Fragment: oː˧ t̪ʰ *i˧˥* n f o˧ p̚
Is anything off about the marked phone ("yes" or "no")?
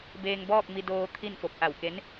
yes